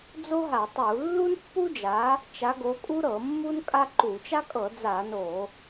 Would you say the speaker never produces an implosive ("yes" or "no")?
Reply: yes